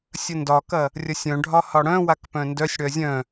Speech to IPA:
sʲ ə n d ɒ k ɐ | rʲ ɐ sʲ œ̃ ɖʱ ɒ h ɒ ɽ œ̃ w a k p œ̃ n d œ sʲ ɽ œ zʲ œ̃

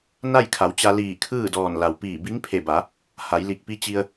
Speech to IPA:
n a˥˨ j kʰ a˩˧ w t͡ɕ a˧ l iː˧˩ kʰ ɯː˥˨ d ɔː˧˩ n l a˩ w p iː˧˩ b i˧˥ ŋ pʰ e˧˩ b a˩˧ | h a˩˧ j l i˧˩ k̚ p i˧˥ t͡ɕ i˧ ə̯

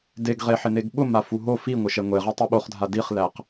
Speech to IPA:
d e ɡ ʁ e ħ ɪ n e ɡ ɓ ʊ m a f u ɦ o f i ŋʷ ɪ ʃ ɛ ŋʷ e ʁ e tˤ u ɓ o χ dʱ a d i χ l æ q

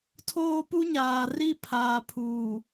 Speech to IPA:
tʰ oː˦ p u˦ ɲ aː˨ r i˦ pʰ aː˨ pʰ uː˨

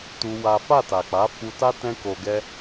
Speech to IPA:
t u˦ w a˦ f a˦˨ t a˨ k͡p a˨˦ f u˧ t a˦ t ɛ̃˦ k o˧ ɡ ɛ˦

